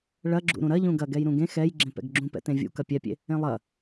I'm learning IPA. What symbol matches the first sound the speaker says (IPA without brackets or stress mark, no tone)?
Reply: ɭ